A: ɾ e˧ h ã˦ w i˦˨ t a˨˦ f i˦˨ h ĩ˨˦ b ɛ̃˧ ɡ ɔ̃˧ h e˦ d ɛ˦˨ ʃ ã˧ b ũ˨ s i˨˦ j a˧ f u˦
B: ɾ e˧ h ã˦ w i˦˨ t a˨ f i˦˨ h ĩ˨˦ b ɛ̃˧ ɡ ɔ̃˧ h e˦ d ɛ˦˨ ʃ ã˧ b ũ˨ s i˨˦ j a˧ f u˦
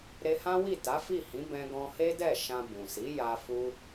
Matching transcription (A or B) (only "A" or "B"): A